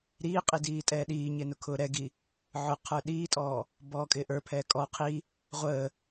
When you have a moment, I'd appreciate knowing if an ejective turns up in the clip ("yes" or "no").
yes